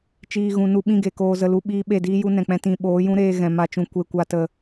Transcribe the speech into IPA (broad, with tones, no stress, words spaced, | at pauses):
t͡ʃiː˨ ɣũ˨nu˧ɓĩ˦˨ɡe˨ koː˧zə˧lu˧ ɓiː˦ ɓe˦˨diː˦ju˦ nɛ̃˨k͡pɛ̃˦ tĩ˧ ɓoː˨˦jũ˦ɾeː˧ ɣɛ̃˨ma˧t͡ʃũ˧ kʷe˦kʷa˦tə˦˨